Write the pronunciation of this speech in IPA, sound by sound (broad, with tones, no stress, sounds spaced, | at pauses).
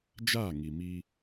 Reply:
d͡ʒ aː˦˨ ŋ i˨ m i˦